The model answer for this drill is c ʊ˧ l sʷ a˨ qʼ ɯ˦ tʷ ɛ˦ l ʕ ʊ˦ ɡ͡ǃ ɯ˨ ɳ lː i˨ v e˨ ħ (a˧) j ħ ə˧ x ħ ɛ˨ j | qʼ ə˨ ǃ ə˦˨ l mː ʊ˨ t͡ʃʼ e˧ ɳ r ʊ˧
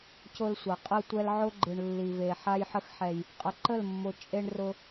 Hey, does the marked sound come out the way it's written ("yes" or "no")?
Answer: yes